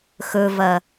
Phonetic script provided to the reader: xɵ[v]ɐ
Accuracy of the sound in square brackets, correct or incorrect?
correct